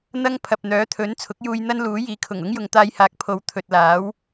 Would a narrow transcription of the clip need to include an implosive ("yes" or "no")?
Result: no